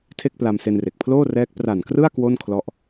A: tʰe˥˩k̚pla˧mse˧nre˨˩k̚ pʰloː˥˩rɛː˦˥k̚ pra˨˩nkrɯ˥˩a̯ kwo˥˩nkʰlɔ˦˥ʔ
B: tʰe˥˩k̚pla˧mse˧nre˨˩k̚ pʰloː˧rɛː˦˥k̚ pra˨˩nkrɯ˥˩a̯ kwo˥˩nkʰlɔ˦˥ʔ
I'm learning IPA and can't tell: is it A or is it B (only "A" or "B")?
A